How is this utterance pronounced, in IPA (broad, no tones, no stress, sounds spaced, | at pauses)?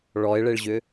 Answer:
ɭ ɔ ɪ̯ ɭ e ɭ ʑ ʏ